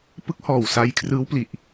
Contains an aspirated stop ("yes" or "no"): yes